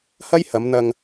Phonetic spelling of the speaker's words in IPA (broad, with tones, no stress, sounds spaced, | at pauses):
h ɐ˥ j h ɐ˨˧ m n̪ ɐ˧ ŋ